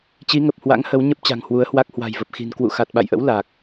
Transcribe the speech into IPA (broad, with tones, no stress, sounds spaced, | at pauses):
t͡ɕ i˨˦ ŋ ə˨˩ p̚ h w a̰˧˥ ŋ h ə˨˦ w ɲ ə˦˥ p̚ t͡ɕ a̤˨˩ ŋ h w u˨˦ ə̯ h w a˦˥ k̚ h w a̤˨˩ j v ə˨˩ p̚ x i̤˨˩ n k w ṵ˧˨ x a˨˩ t̚ ɓ a̰˧˨ j ʔ ə̰˧˥ w l a˨˩ k̚